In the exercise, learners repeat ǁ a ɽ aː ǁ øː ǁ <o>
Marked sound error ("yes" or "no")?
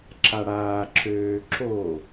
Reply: no